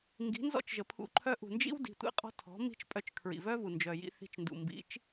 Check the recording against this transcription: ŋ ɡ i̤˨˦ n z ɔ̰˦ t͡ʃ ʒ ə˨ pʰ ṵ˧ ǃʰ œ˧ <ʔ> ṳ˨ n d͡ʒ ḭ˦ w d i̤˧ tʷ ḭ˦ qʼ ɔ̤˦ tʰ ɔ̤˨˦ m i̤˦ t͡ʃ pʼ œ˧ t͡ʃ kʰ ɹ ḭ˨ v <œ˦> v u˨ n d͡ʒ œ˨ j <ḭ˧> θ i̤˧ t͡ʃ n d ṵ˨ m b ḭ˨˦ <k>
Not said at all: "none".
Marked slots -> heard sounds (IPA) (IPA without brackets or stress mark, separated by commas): ʔ, œ˦, ḭ˧, t͡ʃ